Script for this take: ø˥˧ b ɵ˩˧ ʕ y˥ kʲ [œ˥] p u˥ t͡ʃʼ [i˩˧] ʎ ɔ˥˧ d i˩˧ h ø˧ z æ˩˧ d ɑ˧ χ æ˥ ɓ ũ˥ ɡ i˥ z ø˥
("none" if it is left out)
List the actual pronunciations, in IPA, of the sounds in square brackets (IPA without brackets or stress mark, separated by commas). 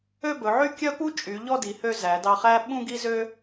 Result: œ˥, y˩˧